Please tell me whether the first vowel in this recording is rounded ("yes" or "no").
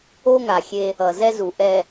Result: yes